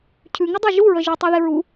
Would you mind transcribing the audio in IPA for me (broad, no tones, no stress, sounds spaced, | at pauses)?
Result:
cʰ ʉ ŋ ɪ dˤ e ʒ u ɹ ə ʒ ʉ tˤ ɛ ð ɪ ɹ u